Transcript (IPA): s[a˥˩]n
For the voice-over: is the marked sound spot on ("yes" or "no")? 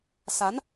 no